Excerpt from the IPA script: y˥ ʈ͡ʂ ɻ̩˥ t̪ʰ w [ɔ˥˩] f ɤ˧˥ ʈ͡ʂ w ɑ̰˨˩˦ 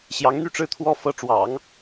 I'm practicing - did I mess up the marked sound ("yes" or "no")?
yes